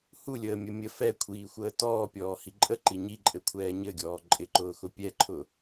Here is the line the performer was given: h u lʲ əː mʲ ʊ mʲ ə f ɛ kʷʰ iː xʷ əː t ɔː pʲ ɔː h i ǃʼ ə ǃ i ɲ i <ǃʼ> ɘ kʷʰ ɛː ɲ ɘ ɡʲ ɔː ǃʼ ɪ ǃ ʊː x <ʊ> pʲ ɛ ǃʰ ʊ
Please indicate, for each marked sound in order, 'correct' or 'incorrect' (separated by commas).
correct, correct